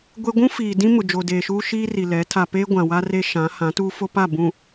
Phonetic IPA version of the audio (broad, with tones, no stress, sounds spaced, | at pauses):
ɡʷ e˦ ɡʷ ũ˦ f iː˨ d ĩ˦ m ʊ˨ d͡ʒ o˨ d eː˨ ʃ uː˦ ʃ iː˦ r i˨ l ɛ˨˦ tʰ a˨ p e˦ ɡʷ ã˨ w a˦ r e˦ ʃ ã˨˦ h ã˨˦ t uː˦ f o˦ p a˦˨ b ũ˨